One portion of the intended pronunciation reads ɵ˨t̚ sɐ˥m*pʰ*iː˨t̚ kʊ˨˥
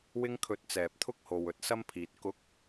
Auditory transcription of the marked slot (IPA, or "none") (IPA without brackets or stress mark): pʰ